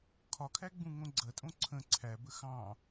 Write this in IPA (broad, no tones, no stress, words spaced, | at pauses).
kʰɒkʰæ ɡ͡bũŋõɡ͡ǀɐtʼõ ǀʰə̃ ǀʰæbə xɑ̃